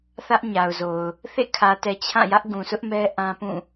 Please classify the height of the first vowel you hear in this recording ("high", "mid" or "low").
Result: low